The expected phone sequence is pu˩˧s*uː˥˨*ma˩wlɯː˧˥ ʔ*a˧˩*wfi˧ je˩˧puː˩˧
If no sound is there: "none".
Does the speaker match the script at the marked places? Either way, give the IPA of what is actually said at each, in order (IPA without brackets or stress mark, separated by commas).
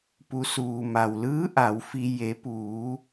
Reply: uː˩, a˩˧